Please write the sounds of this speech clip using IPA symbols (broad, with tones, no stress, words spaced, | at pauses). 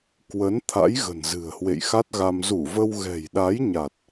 kwə˨˦n t̪ʰa̰˧˥jɣə̤˨˩n zɨ̤˨˩ə̯hwḛ˧˨jxa˦˥t̚ɣa˧m zu˧˩və˧w ɣɛ̤˨˩jɗa˨˦jɲa˨˩t̚